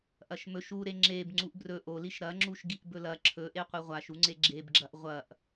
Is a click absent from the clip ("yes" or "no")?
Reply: no